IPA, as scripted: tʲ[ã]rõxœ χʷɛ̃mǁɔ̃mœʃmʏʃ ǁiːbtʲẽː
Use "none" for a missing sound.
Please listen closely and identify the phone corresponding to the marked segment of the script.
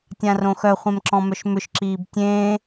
ã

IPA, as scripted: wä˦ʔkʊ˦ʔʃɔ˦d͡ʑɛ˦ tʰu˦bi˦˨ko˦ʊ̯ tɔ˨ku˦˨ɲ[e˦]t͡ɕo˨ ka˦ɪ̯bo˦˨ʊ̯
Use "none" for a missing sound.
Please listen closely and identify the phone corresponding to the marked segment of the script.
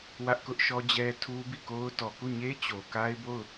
e˦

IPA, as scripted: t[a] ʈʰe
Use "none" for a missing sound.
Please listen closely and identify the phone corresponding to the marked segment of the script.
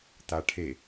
a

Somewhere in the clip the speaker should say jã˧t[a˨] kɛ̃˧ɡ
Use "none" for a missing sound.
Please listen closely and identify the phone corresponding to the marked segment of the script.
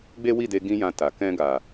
a˨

